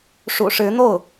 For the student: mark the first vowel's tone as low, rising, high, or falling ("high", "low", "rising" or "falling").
low